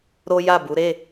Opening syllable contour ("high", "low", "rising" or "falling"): high